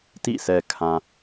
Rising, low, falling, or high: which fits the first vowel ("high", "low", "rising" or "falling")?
falling